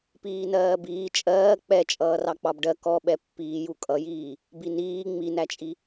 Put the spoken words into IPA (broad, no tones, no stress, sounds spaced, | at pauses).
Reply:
p iː n ɜː b iː t͡ʃʼ ɜː k͡p ɛ t͡ʃʼ ʌː r ɑ k͡p ɑ b ɖ ɜ k ɔ ɓ ɛ pː iː j u kʼ ʌ j iː | b i n iː ŋ͡m i n æ t͡ʃʼ i